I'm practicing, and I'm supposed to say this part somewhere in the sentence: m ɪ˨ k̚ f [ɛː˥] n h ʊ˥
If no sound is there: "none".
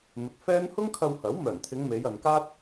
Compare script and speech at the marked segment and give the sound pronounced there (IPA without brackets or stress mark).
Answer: ɛː˥